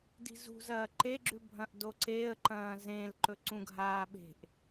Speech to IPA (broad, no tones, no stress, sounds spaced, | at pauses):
d i̤ z ṳ z ɐː ǃ e ɡ͡ǁ ʉ bʱ ɐ̃ ʔ d o ǀ e ə̯ ǃ ɐ̃ː z ẽ l ǃ ɵ ǀ ũ ɡʱ aː ɓ e̤ ʔ